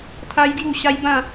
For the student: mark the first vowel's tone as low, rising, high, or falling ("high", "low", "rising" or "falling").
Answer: high